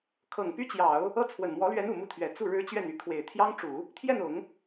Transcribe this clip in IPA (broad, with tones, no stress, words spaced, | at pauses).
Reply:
kʰɤ˨˩ŋpy˥t͡ɕjɑ˨˩˦ʊ̯ | ɤ˥t͡sʰwə˨˩n mwɔ˧˥lɥɛ˧˥n u˨˩mu˥t̪ʰɥɛ˨˩ t͡su˥˩ ɻɻ̩˥t͡ɕɥɛ˥˩ny˧˥ kʰwe˨˩ɪ̯ t̪ʰjɑ˥ŋʈ͡ʂu˨˩˦ | t̪ʰjɛ˥˩nʊ˨˩˦ŋ